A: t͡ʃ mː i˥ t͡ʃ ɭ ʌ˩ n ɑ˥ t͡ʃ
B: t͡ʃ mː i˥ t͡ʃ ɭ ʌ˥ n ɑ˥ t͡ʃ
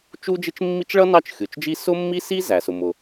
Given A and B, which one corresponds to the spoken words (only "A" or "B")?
B